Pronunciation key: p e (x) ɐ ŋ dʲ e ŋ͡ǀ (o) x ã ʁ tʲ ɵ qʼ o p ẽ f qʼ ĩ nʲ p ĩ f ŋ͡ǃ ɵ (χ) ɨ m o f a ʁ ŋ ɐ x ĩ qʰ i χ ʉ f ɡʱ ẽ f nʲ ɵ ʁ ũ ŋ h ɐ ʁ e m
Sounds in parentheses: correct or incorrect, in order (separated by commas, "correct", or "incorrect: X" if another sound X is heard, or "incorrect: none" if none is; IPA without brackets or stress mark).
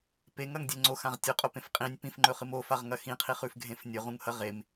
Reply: incorrect: ŋ, correct, correct